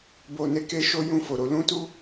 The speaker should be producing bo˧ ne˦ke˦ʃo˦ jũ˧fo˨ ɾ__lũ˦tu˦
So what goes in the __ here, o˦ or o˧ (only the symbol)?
o˧